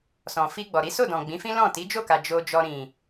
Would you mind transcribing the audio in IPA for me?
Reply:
s ɔ̃˨ f i˧ ɡ͡b ɔ˨ ɾ i˨˦ s o˦˨ d ɔ̃˨ ɡ͡b ĩ˨˦ f ĩ˦ l ɔ̃˦˨ t i˨˦ d͡ʒ o˦˨ k a˨ d͡ʒ o˨ d͡ʒ ɔ˨ ɾ ĩ˨

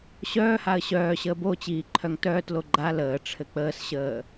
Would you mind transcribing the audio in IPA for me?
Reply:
ɕ œː h a ə̯ ɕ œː ɕ əː b o t͡ɕ iː ǃʰ œ ŋ t œː t l o ɡ͡ǃ a l əː ʈ͡ʂʰ ɘ k͡p əː s ɕ əː

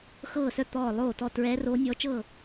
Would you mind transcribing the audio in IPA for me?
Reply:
x ɤː˥˩ s œ˥˩ t̪ ɔː˥˩ lˠ oː˥˩ t ɔ˥˩ t ɹ ɛː˧˥ r oː˧˥ nʲ ɔː˧˥ t͡ʃ ɤ˥˩

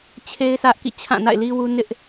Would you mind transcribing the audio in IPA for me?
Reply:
t͡ɕʰ e˦ ɪ̯ sʰ ä˦ ʔ k ḭ˦˨ t͡ɕʰ ã˦˨ n a̰˦˨ ɪ̯ l i˦ w u˦ n ɪ˦ ʔ

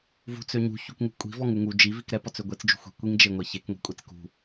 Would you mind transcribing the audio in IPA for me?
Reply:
v ṳ t͡s ø ɲ ṳ ç u k ŋ ṳ kʷʼ i̤ v ɔ ŋ u ŋ u d͡ʒ i v i k ɾ ɛ p ɔ t͡s ø ɡʷ e t͡s d͡ʒ ṳ xʷ i̤ kʷ i ŋ d͡ʒ e ŋʷ ɛ ç e k ŋʷ i̤ kʷʼ e t͡s k ṳ

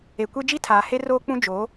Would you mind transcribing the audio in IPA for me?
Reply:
e˨ kʷ e˦ d͡ʒ i˦ tʰ aː˨ h e˦ r oː˦ k͡p ũ˦ d͡ʒ o˨˦

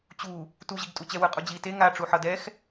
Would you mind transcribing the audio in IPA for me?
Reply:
t͡ɕ u | t u ʑ i ɡ tʼ u t͡ɕ ɛ w ɯ qʼ u d͡ʑ i t e ŋ a ʈ͡ʂ u ħ ʌ d ɛ x

